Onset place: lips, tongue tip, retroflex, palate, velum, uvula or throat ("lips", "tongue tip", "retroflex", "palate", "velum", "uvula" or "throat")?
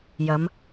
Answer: palate